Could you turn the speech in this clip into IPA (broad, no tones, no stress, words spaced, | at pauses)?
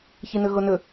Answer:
çinɵɣonɵ